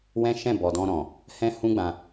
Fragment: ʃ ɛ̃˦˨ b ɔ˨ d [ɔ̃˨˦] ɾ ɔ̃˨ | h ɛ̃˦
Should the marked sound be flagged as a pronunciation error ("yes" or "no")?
yes